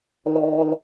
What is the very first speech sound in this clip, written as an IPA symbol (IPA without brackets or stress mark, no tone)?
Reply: l